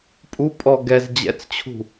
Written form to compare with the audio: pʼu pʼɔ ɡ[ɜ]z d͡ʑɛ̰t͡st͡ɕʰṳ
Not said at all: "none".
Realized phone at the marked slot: ɛ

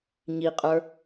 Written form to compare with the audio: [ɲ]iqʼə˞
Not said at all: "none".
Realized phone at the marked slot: ɲ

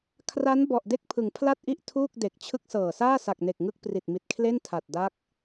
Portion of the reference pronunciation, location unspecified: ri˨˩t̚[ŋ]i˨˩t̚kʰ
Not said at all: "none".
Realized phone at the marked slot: m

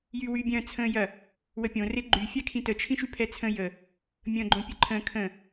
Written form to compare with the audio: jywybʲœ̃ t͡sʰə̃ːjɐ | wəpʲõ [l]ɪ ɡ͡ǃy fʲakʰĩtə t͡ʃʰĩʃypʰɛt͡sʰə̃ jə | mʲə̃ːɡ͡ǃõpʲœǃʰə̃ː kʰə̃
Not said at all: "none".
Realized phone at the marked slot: r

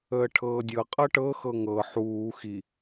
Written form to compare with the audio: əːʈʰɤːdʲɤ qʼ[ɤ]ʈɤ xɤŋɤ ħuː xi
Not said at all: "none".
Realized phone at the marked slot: ɤ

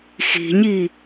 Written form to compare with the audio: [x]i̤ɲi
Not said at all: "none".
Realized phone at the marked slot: x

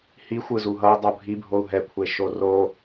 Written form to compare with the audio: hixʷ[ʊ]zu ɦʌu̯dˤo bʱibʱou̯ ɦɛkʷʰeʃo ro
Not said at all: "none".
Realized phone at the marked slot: ɯ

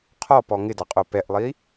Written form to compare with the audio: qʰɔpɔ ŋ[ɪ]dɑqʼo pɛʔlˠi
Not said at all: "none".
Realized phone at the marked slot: ɪ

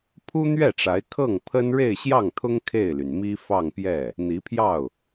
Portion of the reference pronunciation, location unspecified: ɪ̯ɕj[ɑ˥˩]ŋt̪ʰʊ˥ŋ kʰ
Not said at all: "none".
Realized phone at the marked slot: ɑ˥˩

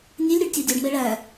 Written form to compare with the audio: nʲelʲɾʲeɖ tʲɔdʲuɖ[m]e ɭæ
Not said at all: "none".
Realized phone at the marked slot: m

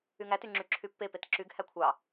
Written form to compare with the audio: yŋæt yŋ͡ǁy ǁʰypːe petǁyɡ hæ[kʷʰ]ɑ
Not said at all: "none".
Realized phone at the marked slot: kʷʰ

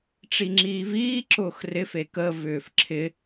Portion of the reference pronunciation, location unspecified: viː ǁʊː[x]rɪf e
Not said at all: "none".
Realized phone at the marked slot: x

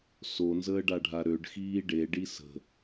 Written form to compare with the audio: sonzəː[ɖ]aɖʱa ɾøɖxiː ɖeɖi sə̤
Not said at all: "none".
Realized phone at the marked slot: ɖ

